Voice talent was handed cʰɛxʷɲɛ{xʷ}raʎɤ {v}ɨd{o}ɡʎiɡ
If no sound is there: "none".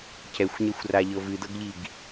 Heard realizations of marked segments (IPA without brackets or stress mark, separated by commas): xʷ, v, ɤ